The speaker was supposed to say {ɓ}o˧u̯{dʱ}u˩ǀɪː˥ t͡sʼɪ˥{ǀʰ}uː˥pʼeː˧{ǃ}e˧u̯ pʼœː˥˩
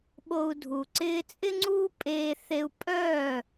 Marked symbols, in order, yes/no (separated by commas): yes, yes, no, no